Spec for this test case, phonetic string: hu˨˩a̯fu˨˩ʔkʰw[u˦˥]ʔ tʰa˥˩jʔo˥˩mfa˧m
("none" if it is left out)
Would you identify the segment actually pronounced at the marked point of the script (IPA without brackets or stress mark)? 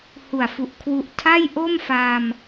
u˦˥